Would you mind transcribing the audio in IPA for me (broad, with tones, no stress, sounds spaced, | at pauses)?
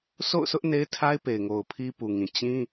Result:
sʰ o̰˦˨ ʊ̯ sʰ ʊ˦ ʔ n e˦ ɪ̯ tʰ a˦ ɪ̯ p e˨ ɪ̯ ŋ o˨ ʊ̯ pʰ i˦ p u˨ ŋ ĩ˨ t͡ɕ ĩ˦